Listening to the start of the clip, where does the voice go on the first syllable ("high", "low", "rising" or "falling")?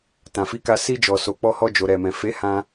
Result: low